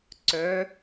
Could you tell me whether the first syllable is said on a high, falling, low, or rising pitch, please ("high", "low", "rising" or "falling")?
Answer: rising